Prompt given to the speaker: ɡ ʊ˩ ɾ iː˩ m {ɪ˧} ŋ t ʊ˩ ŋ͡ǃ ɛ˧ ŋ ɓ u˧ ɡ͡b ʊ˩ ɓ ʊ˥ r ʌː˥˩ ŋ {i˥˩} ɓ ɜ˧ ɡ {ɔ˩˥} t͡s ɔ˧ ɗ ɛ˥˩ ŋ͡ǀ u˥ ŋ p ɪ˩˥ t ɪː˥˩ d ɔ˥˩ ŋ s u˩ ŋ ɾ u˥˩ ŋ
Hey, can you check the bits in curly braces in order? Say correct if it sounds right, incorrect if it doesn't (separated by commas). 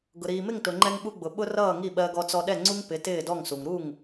incorrect, correct, incorrect